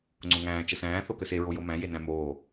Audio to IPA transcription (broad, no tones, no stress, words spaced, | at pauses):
ŋ͡ǀʊŋæ̃ː t͡ʃəsæ̃ː θokəse ɹojomæ̃ jenæ̃moː